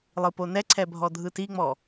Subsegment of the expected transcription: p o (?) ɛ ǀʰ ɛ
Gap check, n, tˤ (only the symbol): n